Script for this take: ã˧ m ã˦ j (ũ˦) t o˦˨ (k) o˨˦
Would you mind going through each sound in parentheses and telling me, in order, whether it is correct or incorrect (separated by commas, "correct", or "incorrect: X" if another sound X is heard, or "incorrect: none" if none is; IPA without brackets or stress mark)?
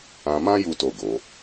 incorrect: u˦, incorrect: ɡ